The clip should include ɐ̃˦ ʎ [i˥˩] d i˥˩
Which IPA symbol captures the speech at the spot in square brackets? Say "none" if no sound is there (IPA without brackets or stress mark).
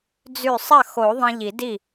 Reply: i˨˩˦